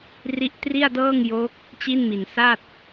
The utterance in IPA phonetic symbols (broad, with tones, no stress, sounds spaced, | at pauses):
r i˦˥ ʔ t r i˥˩ a̯ d ɤː˥˩ ŋ j o˦˥ k̚ | t͡ɕ i˥˩ n m i˨˩ n s a˥˩ t̚